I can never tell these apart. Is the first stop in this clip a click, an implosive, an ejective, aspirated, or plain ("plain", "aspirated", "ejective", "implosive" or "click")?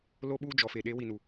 implosive